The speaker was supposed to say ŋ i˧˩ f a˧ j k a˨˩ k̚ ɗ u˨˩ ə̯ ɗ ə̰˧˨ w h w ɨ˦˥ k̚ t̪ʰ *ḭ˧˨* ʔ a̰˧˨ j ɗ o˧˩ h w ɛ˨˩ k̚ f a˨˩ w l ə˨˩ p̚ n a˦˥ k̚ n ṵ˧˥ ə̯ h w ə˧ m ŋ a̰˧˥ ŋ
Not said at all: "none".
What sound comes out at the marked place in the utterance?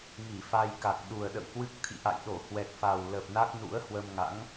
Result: ḭ˧˨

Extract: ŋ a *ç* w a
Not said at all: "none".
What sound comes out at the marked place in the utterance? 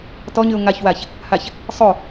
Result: ç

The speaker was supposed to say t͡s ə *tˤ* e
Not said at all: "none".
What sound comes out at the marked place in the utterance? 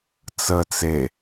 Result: t͡s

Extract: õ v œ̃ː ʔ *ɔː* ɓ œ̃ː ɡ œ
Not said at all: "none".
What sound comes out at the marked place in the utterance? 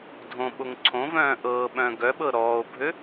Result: ɤː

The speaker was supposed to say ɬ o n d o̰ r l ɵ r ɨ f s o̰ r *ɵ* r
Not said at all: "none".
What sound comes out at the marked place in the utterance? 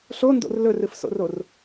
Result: o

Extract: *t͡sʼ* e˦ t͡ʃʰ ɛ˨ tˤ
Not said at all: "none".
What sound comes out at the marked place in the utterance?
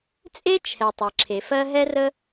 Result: t͡sʼ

